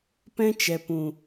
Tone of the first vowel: high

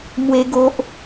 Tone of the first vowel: high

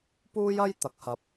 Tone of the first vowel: high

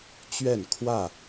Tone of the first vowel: falling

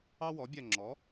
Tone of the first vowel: high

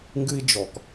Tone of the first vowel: high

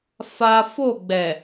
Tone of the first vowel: high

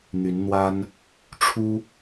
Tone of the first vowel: rising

